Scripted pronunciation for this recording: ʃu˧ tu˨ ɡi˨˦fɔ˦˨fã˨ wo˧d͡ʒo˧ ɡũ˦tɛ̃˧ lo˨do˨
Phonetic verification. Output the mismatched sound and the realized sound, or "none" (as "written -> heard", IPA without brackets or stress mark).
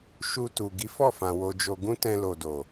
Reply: none